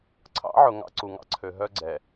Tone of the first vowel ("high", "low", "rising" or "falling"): rising